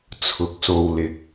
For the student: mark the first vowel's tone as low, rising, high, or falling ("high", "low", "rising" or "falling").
rising